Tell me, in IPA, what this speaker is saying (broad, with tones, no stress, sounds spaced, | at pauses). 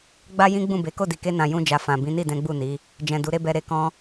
ɡ͡b a˦ j ĩ˦ ɡ͡b ũ˦˨ b e˨˦ k o˦˨ d i˨ k e˧ n ã˨ j ũ˧ d͡ʒ a˨ f ã˨ b ĩ˨˦ n i˦˨ d ɛ̃˨˦ ɡ͡b u˦˨ n i˨˦ | d͡ʒ ɛ̃˨ d u˨˦ ɾ e˦ b ɛ˧ ɾ e˧ k ɔ̃˦